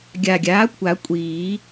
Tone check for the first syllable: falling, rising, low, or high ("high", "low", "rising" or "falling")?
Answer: low